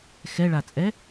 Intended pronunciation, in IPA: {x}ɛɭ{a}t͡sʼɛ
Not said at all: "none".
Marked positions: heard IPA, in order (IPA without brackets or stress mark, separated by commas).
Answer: x, a